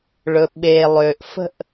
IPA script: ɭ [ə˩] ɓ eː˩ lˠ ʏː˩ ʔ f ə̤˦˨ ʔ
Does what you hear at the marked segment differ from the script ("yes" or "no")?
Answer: yes